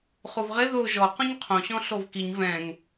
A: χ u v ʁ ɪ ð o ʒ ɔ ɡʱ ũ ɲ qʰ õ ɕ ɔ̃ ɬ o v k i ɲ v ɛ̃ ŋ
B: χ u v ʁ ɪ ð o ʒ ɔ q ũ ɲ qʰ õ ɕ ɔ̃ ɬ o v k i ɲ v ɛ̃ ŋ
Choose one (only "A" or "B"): B